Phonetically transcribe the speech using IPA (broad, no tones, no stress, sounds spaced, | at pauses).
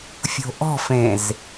fʲ o̤ ʔ ɔ̤ f ẽ z